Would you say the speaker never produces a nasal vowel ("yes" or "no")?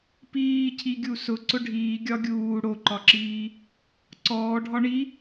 yes